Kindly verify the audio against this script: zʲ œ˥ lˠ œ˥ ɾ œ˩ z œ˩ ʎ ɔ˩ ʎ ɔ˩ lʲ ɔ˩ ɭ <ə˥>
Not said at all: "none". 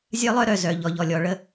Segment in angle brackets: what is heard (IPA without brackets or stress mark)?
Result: ə˥